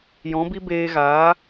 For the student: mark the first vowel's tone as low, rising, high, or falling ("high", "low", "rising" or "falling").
rising